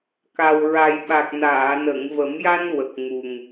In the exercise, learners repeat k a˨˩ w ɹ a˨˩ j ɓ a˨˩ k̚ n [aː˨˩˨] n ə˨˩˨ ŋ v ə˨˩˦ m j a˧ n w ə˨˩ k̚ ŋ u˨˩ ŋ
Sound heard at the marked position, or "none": aː˨˩˨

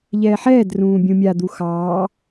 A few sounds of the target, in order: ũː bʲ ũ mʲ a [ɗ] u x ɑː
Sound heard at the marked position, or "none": d̪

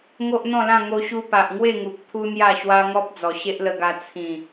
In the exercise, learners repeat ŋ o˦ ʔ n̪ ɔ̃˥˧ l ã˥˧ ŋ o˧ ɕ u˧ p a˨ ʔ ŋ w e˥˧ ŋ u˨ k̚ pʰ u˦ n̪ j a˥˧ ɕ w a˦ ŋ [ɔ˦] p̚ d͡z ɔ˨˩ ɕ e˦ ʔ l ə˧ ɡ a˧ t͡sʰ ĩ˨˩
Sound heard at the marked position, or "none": ɔ˦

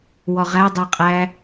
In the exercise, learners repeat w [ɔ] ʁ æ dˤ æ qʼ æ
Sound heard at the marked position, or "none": ɔ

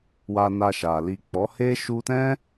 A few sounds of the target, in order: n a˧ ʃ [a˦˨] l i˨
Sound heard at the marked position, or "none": a˨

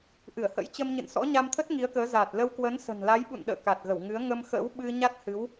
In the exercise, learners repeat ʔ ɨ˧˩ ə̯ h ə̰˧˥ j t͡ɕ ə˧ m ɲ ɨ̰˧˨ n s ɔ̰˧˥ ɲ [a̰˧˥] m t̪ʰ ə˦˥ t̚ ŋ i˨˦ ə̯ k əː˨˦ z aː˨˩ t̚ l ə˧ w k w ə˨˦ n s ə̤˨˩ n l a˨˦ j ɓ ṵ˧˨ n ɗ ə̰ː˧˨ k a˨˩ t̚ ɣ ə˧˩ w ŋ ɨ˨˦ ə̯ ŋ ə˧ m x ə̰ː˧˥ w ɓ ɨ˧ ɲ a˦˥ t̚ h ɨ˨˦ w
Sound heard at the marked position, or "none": a˧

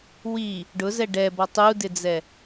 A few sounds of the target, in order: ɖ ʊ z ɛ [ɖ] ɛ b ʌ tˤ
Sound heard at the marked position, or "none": ɖ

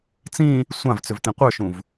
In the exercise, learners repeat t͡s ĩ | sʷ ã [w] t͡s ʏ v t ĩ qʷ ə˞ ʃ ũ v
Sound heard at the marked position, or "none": v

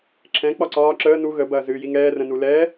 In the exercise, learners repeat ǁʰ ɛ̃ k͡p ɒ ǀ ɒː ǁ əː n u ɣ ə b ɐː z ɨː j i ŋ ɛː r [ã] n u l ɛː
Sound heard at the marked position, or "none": ə̃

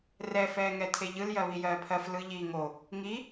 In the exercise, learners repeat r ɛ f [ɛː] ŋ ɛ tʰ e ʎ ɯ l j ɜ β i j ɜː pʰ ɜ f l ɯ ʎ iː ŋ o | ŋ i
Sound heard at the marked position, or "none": ɛː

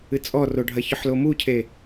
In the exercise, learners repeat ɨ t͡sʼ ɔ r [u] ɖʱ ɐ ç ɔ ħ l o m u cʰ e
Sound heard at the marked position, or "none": o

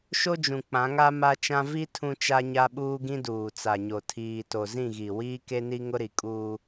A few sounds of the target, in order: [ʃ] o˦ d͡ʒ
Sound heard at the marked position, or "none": ʃ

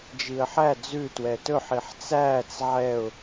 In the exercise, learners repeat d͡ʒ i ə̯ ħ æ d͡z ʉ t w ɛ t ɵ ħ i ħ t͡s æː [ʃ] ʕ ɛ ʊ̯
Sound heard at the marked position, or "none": t͡s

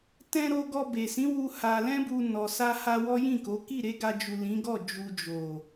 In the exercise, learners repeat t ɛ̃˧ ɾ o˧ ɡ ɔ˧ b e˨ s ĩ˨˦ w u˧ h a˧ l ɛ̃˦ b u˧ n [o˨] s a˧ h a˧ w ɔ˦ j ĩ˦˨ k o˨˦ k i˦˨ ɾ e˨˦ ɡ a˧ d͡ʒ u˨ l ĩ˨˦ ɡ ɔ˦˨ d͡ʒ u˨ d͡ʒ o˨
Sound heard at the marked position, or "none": ɔ˨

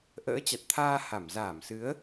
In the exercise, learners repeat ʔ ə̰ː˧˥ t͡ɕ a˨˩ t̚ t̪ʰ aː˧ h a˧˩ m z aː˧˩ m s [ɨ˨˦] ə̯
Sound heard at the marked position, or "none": ɨ˨˦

